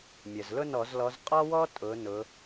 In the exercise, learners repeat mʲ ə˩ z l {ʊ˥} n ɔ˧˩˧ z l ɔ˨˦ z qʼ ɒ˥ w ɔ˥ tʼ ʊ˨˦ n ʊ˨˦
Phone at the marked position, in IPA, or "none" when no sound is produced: ʊ˥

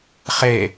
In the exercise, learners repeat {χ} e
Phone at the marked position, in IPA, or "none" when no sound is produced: χ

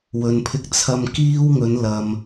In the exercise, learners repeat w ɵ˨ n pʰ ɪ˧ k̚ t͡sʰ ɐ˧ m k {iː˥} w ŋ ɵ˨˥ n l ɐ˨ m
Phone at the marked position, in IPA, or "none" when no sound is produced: iː˥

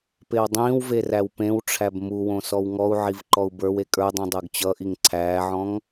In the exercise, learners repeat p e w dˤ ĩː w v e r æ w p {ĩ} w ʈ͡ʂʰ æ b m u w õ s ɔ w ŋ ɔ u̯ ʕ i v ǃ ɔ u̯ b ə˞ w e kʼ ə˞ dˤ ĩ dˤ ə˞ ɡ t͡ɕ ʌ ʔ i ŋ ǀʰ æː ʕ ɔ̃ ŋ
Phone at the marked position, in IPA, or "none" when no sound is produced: ẽ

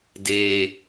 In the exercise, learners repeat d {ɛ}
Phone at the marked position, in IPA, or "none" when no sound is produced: e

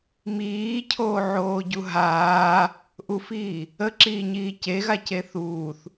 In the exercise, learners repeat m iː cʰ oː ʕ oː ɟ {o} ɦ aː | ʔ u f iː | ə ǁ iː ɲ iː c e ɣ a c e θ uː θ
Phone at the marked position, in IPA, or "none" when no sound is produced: u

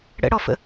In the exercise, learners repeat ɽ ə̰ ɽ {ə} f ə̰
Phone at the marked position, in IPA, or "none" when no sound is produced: ɔ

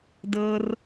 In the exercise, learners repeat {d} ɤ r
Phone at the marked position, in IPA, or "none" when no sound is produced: d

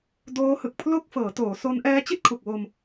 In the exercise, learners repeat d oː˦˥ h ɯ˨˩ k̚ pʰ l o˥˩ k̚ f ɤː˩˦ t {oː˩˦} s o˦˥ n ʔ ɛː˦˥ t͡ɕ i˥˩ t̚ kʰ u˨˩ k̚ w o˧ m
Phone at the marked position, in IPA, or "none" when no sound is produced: oː˩˦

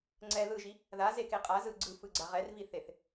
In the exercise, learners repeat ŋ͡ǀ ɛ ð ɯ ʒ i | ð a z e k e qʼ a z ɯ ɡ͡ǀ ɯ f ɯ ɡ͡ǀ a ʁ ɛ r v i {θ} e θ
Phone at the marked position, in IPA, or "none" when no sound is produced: θ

